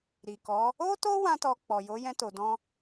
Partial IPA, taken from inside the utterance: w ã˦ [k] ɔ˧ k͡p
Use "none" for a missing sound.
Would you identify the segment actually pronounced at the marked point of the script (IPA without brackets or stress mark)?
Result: t